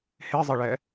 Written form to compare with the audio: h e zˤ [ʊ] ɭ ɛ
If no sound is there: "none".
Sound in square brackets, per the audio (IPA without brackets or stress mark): ə